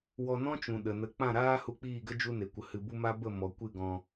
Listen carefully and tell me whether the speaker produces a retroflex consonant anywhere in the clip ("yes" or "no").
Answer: no